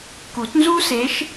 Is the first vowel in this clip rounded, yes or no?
yes